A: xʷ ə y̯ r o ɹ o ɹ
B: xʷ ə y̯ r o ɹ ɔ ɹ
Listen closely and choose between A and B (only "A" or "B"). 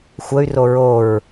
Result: A